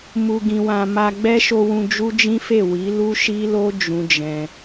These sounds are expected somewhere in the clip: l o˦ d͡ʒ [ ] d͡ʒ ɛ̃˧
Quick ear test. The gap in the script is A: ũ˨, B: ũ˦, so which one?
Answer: B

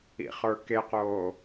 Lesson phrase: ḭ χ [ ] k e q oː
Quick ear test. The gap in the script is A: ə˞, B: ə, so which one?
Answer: A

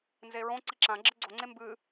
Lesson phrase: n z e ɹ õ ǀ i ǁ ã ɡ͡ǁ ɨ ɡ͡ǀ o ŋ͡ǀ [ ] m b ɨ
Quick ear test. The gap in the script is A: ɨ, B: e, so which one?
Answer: B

